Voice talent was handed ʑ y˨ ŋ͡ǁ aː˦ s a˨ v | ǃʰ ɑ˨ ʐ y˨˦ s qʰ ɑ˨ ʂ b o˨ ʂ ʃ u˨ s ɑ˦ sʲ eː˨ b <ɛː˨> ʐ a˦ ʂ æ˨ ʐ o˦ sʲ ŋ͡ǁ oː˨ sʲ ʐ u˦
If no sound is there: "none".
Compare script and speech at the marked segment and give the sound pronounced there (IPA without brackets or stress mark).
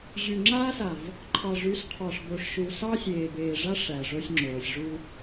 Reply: eː˨